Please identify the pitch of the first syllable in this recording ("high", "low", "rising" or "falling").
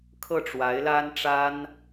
falling